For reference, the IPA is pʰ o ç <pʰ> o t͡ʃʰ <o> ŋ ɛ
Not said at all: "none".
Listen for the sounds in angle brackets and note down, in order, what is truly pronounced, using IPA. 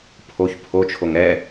pʰ, o

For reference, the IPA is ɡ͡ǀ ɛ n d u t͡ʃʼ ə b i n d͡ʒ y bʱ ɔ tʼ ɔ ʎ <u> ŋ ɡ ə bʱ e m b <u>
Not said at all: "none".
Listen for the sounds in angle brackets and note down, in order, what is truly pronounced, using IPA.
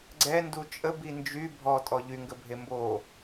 y, o

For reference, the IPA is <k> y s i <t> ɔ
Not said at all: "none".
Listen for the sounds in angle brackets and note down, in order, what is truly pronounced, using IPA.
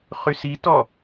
χ, t

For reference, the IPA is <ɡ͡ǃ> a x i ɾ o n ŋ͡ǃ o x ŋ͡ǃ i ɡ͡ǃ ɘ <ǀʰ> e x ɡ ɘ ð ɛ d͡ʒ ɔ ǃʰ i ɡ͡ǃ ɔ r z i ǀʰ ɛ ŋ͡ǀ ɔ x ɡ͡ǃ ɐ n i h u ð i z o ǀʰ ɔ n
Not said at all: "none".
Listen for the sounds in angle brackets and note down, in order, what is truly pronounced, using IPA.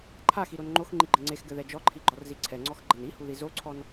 ǃʰ, ŋ͡ǀ

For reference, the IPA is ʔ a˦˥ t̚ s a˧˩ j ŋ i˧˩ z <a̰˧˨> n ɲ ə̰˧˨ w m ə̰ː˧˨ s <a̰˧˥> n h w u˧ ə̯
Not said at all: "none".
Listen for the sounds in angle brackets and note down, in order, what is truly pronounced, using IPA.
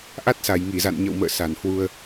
a̰˧˨, a˧˩

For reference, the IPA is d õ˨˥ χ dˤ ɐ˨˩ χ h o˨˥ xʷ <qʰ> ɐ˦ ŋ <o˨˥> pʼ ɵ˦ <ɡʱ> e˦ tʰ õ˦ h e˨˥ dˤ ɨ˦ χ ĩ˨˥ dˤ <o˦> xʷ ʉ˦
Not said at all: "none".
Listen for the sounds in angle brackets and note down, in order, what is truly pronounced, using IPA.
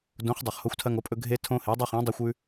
tʰ, o˨˥, ɡʱ, ɵ˦

